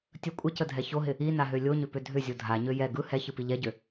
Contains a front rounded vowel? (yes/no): yes